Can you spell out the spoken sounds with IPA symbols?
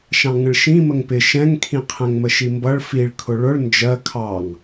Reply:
ʃ ɑ̃ ŋ ə̃ ɭ ʃ ĩ m ə ŋ p ɪ ʃ ɛ̃ ŋ kʰ ĩ qʰ ɛ̃ ŋ m ə ʃ i m b ʌ ɭ f i ɭ kʰ ʊ ɭ ʊ ɭ n d͡ʒ ɜ kʰ ɑ ŋ

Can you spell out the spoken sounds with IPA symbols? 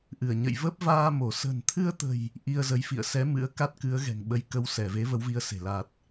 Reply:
ʔ ɨ˧˩ ə̯ ɲ ə̰˧˨ j v ə˦˥ p̚ v aː˧ m o˧˩ s ə̤˨˩ n t̪ʰ ɨ˧ ə̯ t̪ ə̤˨˩ j | ʔ i˧ ə̯ z ə˨˦ j f ḭ˧˨ ə̯ s ɛ˨˦ m ɨ̰˧˥ ə̯ k a˦˥ t̚ k ɨ˨˦ ə̯ ɣ ɛ̤˨˩ ŋ ɓ ə˨˦ j k ə˧ w s ɛ˧˩ v e˨˦ v ə˨˦ w v i˧ ə̯ s e̤˨˩ l a˨˩ t̚

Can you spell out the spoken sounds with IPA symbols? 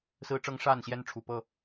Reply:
s ɹ̩˦ ʈ͡ʂ ɤ˦ ŋ ʂ a˥˨ n ɕ j ɛ˦ n ʈ͡ʂʰ u˨˩ p ɤ˥˨

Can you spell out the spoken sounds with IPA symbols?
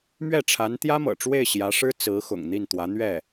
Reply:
m ɥ ɛ˥˩ ʈ͡ʂʰ a˧˥ n t̪ j ä˥ m ɤ̰˨˩ ʈ͡ʂ w e˥˩ ɪ̯ ɕ j ä˧˥ ʂ ɻ̩˥ t͡s ɹ̩˧˥ x ʊ̰˨˩ ŋ n̪ i˥˩ n t̪ w ä˧˥ n̪ ɥ ɛ˥˩

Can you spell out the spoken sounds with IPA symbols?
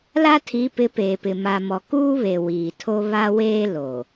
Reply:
l a˦ tʰ i˨˦ p ɪ˨˦ p eː˨ p ɪ˨ m a˨ m ɔ˨ k uː˦ β e˨ w iː˨ tʰ o˦ β a˦ w eː˦ l o˨

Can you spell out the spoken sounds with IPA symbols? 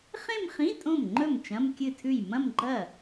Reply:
χ ẽ˥˧ m χ ĩ˧˥˧ tʼ õ˥˩ m ŋ͡ǃ ɵ˥˩ m t͡ʃ ɐ̃˧˥˧ m kʲ ɨ˥˩ tʰ ʉ˥˩ j m ɐ̃˥˧ m ɡ͡ǃ ɐ˥˩

